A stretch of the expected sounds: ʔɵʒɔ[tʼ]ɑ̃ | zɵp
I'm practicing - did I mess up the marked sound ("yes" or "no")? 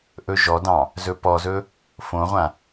yes